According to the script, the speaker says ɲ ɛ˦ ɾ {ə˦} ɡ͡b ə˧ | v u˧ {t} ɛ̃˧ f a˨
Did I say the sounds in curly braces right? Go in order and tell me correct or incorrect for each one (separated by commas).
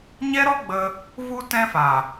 incorrect, correct